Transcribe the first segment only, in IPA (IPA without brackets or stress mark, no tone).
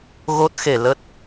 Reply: ɣ